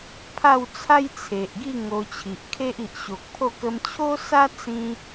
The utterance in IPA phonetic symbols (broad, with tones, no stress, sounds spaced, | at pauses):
pʰ a˥˧ w t͡sʰ a˦ j t͡sʰ e˨ ʔ ɡ i˥˧ ŋ o˧ t͡ɕʰ i˨ ʔ kʰ e˦ ʔ i˨ ʔ ɕ o˨ k̚ pʰ o˥˧ k ə˧ m t͡ɕʰ o˦ s a˦ t͡s ĩ˦